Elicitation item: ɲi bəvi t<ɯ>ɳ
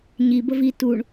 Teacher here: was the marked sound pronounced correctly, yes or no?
no